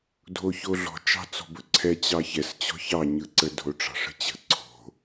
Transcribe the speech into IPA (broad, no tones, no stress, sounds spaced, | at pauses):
dʱ o ç o ɮ ɔ̤ t͡ʃ ɑ̤ t͡s ɔ̤ b ɵ ǀʰ ɛ t͡ɕ ɑ ç ɛ s t͡ɕ ɔ̤ ç ɑ ɲ ɯ ǀ ə dʱ o ʈ͡ʂ ɑ̤ ʂ ə̤ t͡ɕ ə̤ ǀʰ o̤